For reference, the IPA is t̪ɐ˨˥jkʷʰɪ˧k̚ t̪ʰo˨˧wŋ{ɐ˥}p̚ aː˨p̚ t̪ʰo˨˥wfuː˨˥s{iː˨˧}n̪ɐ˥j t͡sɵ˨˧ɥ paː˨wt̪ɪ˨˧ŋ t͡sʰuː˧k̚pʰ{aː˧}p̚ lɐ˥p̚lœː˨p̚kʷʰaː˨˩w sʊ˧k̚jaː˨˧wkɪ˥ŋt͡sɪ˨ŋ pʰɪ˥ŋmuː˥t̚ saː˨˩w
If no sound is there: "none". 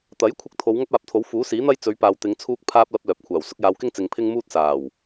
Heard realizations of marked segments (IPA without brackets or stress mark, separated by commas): ɐ˥, iː˨˥, aː˧